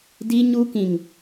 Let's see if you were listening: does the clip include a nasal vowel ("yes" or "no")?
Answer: yes